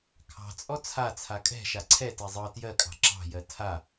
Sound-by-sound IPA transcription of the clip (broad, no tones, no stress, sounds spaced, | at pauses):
kʰ ɑ̤ t͡sʼ ɔ t͡sʰ a t͡sʰ a kʼ ɛ̤ ʃ a ǀʰ ɛ t ɛ zˤ ɤ t j ɜ kʼ ɑ̤ ǁ ɑ̤ j ɜ tʰ a